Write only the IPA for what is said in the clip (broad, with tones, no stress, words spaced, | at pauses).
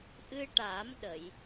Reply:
ʔɨ˧ʈa˨˩˦mɗə˨˩˨j